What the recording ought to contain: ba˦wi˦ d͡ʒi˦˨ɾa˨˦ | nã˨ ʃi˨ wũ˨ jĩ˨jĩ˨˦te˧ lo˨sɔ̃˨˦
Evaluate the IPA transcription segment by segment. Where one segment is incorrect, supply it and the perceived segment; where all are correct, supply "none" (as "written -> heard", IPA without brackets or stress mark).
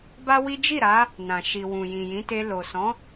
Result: none